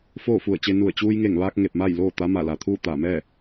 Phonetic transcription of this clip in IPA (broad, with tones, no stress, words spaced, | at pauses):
foː˥˨fu˧˩ə̯t͡ɕe˧nu˧˩ə̯ t͡ɕuː˧jŋe˧˩ŋʋaː˧k̚ ŋe˧˩p̚ma˥˨j loː˥˨t̪a˧˥ ma˧˩la˩t̪ʰuː˥˨ t̪aː˧˩mɛː˥˨